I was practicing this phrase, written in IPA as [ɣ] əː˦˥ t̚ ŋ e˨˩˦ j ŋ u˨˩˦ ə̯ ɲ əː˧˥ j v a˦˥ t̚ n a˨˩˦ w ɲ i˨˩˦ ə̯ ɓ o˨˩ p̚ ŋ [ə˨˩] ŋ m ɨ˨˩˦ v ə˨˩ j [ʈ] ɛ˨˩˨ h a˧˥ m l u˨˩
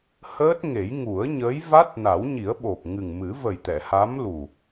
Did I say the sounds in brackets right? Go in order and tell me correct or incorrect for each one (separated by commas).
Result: incorrect, incorrect, incorrect